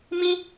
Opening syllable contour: high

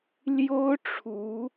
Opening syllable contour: high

